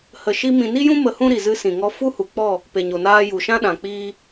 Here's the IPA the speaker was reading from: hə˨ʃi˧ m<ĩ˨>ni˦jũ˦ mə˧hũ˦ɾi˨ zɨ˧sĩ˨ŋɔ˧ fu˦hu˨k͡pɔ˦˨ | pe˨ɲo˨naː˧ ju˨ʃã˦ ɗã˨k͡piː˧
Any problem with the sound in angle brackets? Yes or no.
no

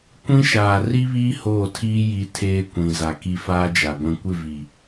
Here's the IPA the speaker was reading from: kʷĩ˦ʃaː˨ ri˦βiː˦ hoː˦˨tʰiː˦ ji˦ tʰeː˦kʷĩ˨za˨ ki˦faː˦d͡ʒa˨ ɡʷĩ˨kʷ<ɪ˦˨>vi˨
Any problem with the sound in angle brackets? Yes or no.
no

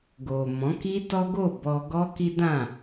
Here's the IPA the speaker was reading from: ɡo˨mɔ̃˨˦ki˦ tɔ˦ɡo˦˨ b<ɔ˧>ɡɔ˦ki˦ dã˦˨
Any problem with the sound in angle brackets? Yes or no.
no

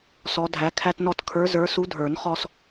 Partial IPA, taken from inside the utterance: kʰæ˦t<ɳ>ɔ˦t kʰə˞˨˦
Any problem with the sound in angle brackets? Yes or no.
yes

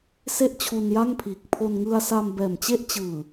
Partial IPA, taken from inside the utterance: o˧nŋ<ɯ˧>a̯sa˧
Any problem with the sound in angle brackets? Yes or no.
no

